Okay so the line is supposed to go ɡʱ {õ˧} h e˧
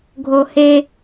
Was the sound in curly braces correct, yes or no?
no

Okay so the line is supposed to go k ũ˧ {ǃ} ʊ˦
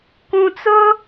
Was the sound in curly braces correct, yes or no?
no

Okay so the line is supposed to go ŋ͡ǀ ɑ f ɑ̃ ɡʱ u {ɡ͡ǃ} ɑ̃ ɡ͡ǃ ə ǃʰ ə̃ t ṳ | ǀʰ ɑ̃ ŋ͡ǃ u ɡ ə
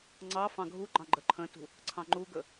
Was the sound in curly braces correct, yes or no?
yes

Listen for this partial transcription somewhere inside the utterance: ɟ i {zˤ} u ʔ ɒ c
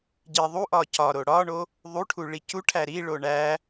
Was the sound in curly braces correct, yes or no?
no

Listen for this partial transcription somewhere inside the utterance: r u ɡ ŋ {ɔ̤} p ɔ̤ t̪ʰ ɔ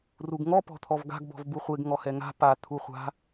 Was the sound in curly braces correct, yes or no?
no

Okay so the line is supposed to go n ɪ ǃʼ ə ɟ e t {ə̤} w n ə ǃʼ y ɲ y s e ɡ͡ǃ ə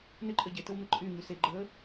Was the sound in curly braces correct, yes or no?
no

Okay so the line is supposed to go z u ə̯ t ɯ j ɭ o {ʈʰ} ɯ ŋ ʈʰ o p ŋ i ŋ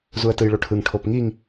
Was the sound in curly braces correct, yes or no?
yes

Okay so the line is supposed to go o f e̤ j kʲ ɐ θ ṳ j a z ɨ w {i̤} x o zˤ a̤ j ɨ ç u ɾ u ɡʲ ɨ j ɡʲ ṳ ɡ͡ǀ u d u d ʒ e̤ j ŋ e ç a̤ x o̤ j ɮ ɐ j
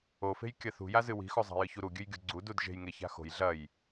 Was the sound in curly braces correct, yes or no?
yes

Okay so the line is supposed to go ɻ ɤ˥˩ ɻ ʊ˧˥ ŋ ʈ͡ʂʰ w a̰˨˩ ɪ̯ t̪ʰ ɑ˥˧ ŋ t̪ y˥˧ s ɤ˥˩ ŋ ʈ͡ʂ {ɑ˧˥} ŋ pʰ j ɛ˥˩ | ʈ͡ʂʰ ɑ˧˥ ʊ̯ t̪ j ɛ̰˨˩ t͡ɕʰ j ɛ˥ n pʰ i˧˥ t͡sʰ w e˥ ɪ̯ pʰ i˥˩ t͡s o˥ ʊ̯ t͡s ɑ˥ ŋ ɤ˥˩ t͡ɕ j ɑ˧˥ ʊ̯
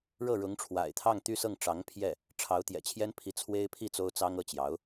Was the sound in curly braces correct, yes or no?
yes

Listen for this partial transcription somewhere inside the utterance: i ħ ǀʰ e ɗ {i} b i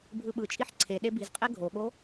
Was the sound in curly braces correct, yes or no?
no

